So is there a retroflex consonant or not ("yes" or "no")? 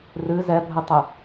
no